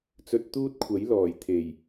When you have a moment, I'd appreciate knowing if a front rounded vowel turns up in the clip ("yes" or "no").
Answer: no